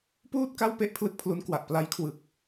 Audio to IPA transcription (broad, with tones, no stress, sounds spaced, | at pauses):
p uː˥˩ t̚ k a˥˩ w p e˥˩ ʔ pʰ l ɯ˥˩ k̚ pʰ l u˦˥ n k w a˨˩ ʔ p l a˦˥ j kʰ w ɯ˨˩ k̚